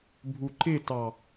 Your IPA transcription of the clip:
bʱ u ǃ ɪ t ɑ

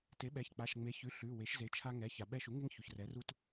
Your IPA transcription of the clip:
t e˩˥ ɓ ɛ˩˧˩ ç k͡p a˩˧˩ ʃ ŋ͡m e˩˥ ç ʉ˩˧˩ ɬ ʉ˩˧˩ w e˩˥ ʃ z e˩˥ t͡ʃʰ a˦ ŋ ɛ˩˧˩ ç a˩ ɓ ɛ˦ ʃ u˩˥ ŋ e˦ ŋ ç u˩ ç r ɛ˩˥ r u˦ t

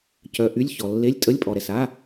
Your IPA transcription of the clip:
c œ˨ ʔ y˧˥˧ lʲ ç ɔ˨ lː e˧˥˧ lʲ tʼ ə˧˥˧ lʲ pʼ ɔ˨ ɾ ɛ˨ s a˧˥˧

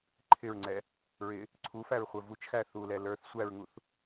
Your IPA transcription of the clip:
ǃʰ ɪ ɹ ŋ͡ǀ ɛ | ɹ ɪ | ǀʰ u f æ ɹ χʷ ə˞ v u t͡ʃ x æ θ u l ɛ l ə˞ θ sʷ æ ɹ ŋ u θ

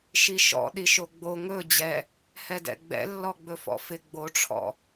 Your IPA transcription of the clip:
ʃ i ʃ ɔ̰ ɗ i ʃ o ɡ͡b o ŋ ɵ d͡ʑ ɛ | h ɛ d ɛ̰ ɡ͡b ɛ̰ lː ɔ ɡ͡b ɵ f ɔ̰ f ɪ ɡ͡b o ʈ͡ʂʰ ɔ̰

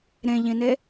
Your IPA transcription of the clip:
ɾ ẽ ʎ ĩ n e

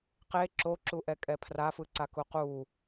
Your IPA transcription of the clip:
q e ǁ o ǁ u ʔ ɛ kʼ ɛ pʰ r a f ɯ ǀ a k u q u

